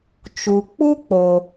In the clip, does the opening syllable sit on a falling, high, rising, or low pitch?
low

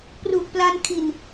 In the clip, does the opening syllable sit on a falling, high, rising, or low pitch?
low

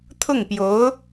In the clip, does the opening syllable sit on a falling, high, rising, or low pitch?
falling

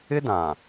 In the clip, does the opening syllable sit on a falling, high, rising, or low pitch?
high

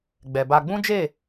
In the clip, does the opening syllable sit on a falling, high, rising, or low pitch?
low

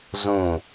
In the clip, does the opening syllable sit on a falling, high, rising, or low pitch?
falling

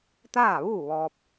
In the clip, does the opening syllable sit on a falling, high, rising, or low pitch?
falling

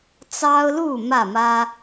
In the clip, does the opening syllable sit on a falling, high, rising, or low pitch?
high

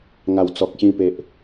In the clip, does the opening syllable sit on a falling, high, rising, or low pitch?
low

